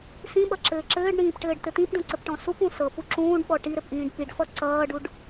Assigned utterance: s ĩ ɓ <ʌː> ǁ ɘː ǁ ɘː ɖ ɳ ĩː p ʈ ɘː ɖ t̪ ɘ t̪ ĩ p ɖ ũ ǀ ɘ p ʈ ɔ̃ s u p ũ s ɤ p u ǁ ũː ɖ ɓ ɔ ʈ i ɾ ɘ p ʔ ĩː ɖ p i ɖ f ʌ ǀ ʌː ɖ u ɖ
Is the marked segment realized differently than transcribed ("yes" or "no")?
yes